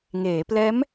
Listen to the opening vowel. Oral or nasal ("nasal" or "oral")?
oral